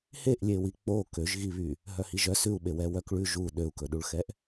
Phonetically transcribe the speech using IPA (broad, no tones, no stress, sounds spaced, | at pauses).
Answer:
h e ʔ lʲ e w i k͡p o k ø ʒ ɣ i β y | ɦ œ h i ʒ œ s ʉ u̯ ɓ e w ɛ w œ k ɭ ʉ ʒ u ɗ ø u̯ k ɵ ɗ u ɭ x ɛ ʔ